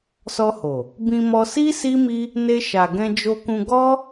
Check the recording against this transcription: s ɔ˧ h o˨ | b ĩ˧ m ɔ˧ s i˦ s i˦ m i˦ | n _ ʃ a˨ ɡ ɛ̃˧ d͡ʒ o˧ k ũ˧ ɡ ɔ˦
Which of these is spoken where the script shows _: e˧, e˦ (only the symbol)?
e˧